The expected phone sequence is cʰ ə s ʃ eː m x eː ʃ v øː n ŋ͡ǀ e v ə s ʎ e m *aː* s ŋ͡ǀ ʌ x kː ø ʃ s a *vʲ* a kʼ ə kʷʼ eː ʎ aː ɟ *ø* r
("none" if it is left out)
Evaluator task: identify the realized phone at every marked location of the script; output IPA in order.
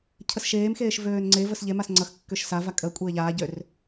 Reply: a, v, ø

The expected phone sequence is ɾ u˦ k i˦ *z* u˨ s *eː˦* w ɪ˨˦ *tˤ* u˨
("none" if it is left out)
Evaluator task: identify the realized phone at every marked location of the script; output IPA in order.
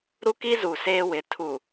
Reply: z, eː˦, tʰ

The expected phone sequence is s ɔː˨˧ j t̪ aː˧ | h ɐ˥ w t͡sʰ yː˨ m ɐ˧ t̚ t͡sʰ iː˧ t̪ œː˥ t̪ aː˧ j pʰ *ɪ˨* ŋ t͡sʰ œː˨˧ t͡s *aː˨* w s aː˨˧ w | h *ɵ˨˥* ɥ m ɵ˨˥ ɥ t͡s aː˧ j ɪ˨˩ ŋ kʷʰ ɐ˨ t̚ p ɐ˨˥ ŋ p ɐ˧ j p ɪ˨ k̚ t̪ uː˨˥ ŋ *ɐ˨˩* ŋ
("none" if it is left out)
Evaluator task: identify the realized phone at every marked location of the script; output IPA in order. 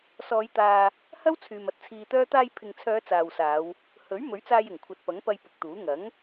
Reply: ɪ˨, aː˨, ɵ˨˥, ɐ˨˥

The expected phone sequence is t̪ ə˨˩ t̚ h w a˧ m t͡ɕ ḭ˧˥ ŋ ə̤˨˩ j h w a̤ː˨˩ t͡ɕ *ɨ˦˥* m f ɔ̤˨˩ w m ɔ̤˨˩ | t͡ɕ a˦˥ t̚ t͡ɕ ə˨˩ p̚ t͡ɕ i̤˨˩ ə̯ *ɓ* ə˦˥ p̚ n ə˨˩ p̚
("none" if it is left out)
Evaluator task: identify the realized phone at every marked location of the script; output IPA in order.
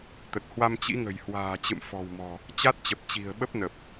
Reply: ɨ̰˧˨, ɓ

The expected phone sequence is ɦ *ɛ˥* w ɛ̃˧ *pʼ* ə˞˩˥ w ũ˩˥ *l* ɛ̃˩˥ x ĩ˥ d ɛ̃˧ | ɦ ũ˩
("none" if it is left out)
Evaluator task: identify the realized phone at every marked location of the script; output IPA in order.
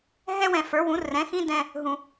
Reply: ɛ˥, f, r

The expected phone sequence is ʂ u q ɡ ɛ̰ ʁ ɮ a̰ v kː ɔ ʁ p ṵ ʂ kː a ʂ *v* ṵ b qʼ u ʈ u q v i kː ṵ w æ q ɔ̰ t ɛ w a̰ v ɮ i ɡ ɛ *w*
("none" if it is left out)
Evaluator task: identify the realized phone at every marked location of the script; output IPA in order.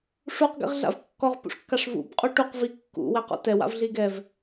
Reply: v, v

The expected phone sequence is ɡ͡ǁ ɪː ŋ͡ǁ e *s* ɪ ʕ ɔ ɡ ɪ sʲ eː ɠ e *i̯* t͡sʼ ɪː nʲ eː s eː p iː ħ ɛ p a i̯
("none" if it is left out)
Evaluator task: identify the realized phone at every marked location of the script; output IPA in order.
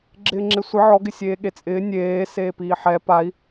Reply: sʷ, none

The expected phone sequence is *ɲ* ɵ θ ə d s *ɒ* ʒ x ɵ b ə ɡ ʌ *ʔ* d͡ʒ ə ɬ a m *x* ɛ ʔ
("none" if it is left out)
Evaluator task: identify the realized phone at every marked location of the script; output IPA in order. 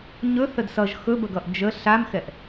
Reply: ɲ, ʌ, ʔ, x

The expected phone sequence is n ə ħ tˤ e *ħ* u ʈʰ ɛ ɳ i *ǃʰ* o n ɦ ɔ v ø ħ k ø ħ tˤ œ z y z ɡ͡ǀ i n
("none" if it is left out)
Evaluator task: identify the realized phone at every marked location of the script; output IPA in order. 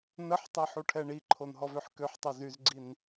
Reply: ħ, ǃʰ

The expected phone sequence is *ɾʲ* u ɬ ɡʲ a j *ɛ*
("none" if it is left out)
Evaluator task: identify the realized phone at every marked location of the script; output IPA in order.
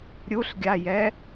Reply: ɾʲ, ɛ

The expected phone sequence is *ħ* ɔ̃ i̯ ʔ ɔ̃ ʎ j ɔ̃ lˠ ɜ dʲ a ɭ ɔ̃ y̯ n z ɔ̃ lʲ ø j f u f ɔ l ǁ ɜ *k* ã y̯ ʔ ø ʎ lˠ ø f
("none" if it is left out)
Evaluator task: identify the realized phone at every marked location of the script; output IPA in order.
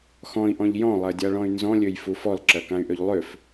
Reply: x, k

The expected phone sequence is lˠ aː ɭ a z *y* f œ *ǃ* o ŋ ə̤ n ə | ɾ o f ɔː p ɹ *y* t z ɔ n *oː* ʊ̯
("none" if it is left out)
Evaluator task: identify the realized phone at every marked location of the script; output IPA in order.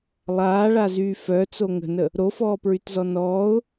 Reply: yː, t͡s, y, ɔː

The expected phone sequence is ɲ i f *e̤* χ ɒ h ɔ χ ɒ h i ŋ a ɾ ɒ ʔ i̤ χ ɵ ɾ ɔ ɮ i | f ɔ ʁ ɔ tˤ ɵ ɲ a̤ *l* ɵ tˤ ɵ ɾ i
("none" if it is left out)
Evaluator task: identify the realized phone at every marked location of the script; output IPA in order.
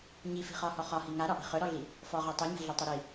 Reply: i̤, ɮ

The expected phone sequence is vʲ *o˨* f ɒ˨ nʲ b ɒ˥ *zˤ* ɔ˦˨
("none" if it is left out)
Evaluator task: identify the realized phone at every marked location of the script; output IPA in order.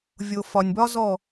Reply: o˨, z

